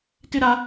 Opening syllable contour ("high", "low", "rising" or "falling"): high